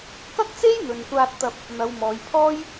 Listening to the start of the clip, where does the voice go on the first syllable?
high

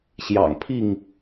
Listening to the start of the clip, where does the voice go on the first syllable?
low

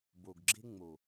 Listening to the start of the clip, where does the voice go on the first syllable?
low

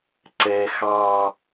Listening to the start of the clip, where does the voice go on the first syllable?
high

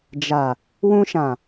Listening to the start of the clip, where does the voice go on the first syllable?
low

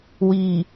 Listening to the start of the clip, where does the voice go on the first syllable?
low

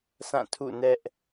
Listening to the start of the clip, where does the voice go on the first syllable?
falling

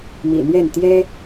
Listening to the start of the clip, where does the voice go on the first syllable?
low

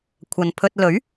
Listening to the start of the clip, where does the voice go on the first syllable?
low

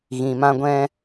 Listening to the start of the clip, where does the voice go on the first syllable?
low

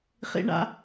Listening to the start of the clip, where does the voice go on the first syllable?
high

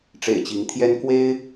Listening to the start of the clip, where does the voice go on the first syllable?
low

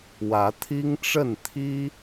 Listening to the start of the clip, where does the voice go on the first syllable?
rising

